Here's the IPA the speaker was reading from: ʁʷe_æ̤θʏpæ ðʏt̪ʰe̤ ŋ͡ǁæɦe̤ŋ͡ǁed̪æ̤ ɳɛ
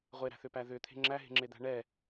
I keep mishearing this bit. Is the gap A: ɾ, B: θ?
A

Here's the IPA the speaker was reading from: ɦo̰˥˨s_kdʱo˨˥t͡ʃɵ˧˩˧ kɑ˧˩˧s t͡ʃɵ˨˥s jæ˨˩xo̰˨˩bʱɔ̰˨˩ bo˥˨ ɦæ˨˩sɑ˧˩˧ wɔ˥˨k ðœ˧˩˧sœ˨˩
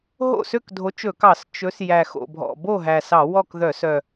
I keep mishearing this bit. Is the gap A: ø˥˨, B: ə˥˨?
A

